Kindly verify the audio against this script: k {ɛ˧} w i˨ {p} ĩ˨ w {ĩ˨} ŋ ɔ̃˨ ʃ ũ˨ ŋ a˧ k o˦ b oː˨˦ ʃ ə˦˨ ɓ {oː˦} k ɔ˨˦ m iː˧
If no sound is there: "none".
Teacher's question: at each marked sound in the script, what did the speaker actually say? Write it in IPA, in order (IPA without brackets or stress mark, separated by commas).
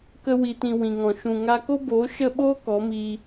ə˧, t, ĩ˨, oː˦